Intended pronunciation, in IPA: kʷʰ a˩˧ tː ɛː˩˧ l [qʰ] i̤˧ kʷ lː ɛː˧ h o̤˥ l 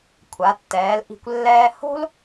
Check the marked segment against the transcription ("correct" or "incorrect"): incorrect